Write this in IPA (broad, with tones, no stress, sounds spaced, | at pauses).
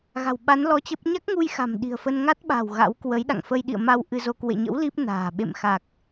ɣ a̤˨˩ w ɓ a˨˦ n l ɔ˧ t͡ɕ ə˦˥ p̚ ɲ a˦˥ k̚ ŋ u˧ j x a̤˨˩ m ɗ i̤˨˩ ə̯ f ə˧ n ŋ a˦˥ t̚ ɓ a̤˨˩ w ɣ a̰˧˥ w k w ə˨˦ j ɗ a̰˧˨ ŋ f ə˧ j ɗ ḭ˧˨ ə̯ m a˧ w ʔ ɨ˧ z o˧ k w ḛ˧˨ ɲ ə̰˧˥ w l i˦˥ p̚ n a̤ː˨˩ ɓ ḛ˧˨ m x a˨˩ k̚